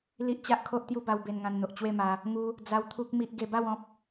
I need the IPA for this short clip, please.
l i˦ ʔ t͡ɕ a˦ ʔ kʰ o˦ ʔ t̪ j u˥˧ b a˧ w b e˧ n ŋ ã˧ n n̪ o˨ ʔ t͡ɕ w e˥˧ m a˧ | ŋ u˧ | d͡z a˦ w t̪ʰ u˦ k̚ m i˦ ʔ ɡ e˧ b a˥˧ w ɔ̃˦ p̚

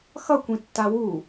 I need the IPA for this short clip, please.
x ʌ kʷ ĩ tː a w u

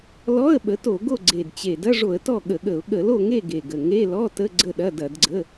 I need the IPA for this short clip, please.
l ɔ˧˥˧ ə̯ ɓ ə˩˥ t o˧˩˧ ɡ o˥˨ ɡ͡ǀ e˨˩ d t͡ɕ e˨˩ d ɐ˧˥˧ ʐ o˧˩˧ ə̯ t ɔ˥˨ ɠ ə˧˩˧ ɠ ə˧˩˧ ʊ̯ ɠ ə˧˩˧ l o˥˨ ŋ e˥˨ ɡ e˨˩ ɡ ə˨˩ ŋ e˧˥˧ l ɔ˧˥˧ t ə˧˥˧ ɡ͡ǀ ə˥˨ ɗ ɐ˧˥˧ d ɐ˧˩˧ d ɡ͡ǀ ə˧˥˧

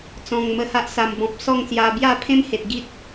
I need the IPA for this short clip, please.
t͡s ɔ̃˨˩ ŋ m ə˧ h a˦ ʔ s a˨˩ m b ɔ̃˨ p̚ s ɔ˥˧ ŋ s j a˧ b j a˥˧ pʰ ẽ˦ m h e˨ t̚ ɡ i˦ t̚

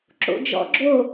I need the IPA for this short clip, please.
ǁ o̰ d͡ʒ ɔ̰ ɡ͡ǁ o

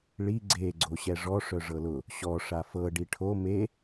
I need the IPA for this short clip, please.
ɭ i ɡ͡ǀ e ɡ͡ǀ o ɕ ɛ ʐ ɔ ʂ œ ʐ ɤ l ʊ | ɕ ɔ ʂ a f ɤ ɖ i ʈʰ o m e

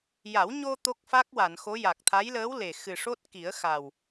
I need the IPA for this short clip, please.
j a˨˩˦ w ɲ o˧ t̪ o˦˥ k̚ f a˦˥ k̚ w a˨˩˨ n x o˧˥ j a˨˩ k̚ t̪ʰ a˧˥ j l əː˧˥ w l e˨˩ x ɨ˨˩ ʂ o˦˥ t̚ k i˨˩˦ ə̯ x a˨˩ w

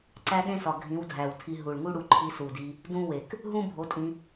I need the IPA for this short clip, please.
ǀ æ˦ ɠ ẽ˦ s ɒ˨ ɡʱ ĩ˨˦ w dʱ æ˨ w tʰ i˧ ɦ u˨ ɭ ŋ u˦ ɽ u˧ ǃʰ i˧ s u˨ d i˧ | d ũ˦ w e˨ k | ɦ ũ˦ bʱ o˨˦ tʼ ĩ˧

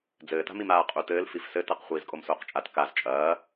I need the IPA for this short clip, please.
d͡z ɘː t a̤ m i m aː qʼ u t ɘː l f i f s ɘ t ɐ q χʷ iː z kʼ o m s oː q t͡ʃʼ a t k a z t͡ʃʼ ɐː

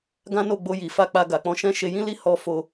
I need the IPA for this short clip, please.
ɡ ã˦ n o˦˨ ɡ͡b o˧ j i˨ f a˧ k͡p a˧ ɡ a˨ k͡p ɔ̃˧ ʃ ɛ̃˦ ʃ e˧ j ĩ˦ l i˦ h ɔ˧ f o˧

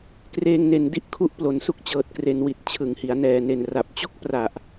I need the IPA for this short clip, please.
k r eː˧ ŋ n e˨˩ n d i˥˩ ʔ kʰ u˦˥ ʔ p l o˩˦ n s u˦˥ k̚ t͡ɕ ɤː˨˩ t̚ k r e˩˦ n w i˨˩ t̚ t͡ɕʰ ɯ˩˦ ŋ h i˩˦ a̯ n ɛː˨˩ n e˨˩ n r a˨˩ p̚ t͡ɕ o˦˥ k̚ p r a˨˩ ʔ

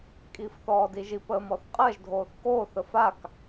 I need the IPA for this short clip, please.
kʼ iː f θ ɔː d i ʒ i p əː m ɔ θ qʼ ɜ ʒ dʱ oː θ k oː θ ə f a k

